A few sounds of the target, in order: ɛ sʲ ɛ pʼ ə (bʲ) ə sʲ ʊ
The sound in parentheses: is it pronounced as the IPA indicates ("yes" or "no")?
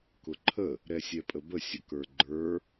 no